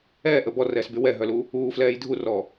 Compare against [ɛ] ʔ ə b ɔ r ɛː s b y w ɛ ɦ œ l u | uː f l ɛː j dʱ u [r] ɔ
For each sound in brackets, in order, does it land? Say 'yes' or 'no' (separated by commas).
no, yes